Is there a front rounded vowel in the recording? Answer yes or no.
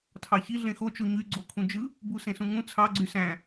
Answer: yes